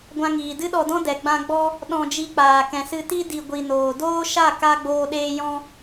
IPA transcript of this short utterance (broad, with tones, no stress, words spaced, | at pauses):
ɡʷã˧ ŋiː˨dɨ˦ɗɔ˧dɔ̃˦ dɛ˨ ɡ͡bã˧ ɡ͡bɔ˧ | ɗɔ̃˧d͡ʒi˧k͡paː˨ kɛ̃˨sɨ˧ti˦ di˧ ɡʷi˨noː˨doː˦ ʃa˦˨ka˧ ɡ͡boː˧ɗeː˧ jɔ̃˦